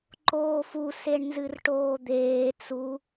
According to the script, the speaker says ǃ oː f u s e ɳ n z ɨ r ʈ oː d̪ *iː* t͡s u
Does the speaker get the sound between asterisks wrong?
yes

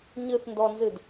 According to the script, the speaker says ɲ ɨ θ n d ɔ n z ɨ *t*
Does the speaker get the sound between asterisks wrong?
yes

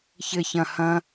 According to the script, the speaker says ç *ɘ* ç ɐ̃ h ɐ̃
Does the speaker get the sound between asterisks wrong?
no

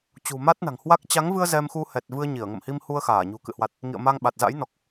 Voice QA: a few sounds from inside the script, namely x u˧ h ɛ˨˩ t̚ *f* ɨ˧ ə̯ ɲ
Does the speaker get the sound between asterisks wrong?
yes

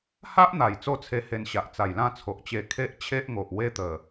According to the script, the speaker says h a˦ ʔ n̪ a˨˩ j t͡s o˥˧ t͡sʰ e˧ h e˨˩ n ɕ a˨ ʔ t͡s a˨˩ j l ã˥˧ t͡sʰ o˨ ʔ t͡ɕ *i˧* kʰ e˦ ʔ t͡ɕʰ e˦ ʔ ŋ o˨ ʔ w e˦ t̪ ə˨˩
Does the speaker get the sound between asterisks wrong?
yes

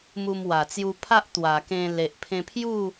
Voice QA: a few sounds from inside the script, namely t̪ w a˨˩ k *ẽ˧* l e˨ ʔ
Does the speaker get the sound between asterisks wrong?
no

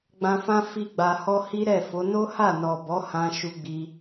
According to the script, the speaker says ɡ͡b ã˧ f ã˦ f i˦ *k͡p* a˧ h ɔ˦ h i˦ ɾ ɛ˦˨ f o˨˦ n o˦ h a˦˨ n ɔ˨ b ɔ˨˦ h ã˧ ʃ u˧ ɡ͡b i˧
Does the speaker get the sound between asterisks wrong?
yes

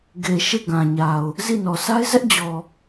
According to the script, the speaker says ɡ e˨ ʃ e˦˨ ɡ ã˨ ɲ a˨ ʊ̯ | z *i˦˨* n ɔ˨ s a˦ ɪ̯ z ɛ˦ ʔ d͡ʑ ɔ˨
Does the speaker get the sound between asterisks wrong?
no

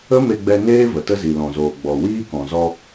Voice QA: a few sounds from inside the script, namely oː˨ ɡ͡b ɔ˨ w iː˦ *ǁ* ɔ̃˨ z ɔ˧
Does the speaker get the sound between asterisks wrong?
yes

